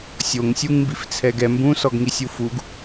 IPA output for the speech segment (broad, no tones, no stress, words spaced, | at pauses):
sʲoŋ sʲuŋmbift͡sʰɛɡɛ mbũ sɔɡŋisʲufuɡ